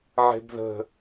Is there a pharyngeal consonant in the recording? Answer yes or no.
yes